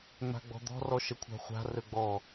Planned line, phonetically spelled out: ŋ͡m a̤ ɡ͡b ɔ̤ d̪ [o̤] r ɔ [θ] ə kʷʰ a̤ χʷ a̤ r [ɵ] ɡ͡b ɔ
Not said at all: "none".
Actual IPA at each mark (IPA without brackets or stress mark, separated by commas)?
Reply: ɔ̤, ʃ, ɵ